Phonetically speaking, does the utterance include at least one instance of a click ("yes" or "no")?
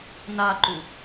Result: yes